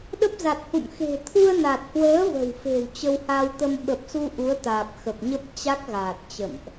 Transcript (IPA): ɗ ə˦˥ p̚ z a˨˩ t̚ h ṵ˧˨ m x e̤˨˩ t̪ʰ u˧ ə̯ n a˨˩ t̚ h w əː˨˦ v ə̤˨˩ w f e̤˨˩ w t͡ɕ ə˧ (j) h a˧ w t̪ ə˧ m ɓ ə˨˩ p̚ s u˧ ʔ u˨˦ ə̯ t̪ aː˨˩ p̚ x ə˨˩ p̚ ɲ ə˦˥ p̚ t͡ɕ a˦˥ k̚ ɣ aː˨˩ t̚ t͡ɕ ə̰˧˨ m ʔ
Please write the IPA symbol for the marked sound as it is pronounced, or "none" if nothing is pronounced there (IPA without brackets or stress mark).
w